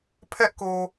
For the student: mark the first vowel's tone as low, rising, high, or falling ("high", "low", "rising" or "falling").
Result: high